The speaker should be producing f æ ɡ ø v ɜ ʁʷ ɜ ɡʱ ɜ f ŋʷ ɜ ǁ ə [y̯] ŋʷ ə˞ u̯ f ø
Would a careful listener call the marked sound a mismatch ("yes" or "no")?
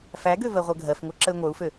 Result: no